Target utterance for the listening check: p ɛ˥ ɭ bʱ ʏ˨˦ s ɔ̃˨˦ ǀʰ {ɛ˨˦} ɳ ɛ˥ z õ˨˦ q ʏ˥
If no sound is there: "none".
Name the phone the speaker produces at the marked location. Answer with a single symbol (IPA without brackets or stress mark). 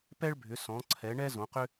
ɛ˨˦